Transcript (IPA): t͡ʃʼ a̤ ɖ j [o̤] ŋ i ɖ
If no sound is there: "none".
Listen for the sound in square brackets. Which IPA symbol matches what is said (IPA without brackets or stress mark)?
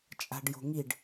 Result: o̤